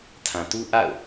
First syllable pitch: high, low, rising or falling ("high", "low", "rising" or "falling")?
low